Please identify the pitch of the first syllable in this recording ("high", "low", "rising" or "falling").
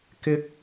rising